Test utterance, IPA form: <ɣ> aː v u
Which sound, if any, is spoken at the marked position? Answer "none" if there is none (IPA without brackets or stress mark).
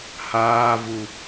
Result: h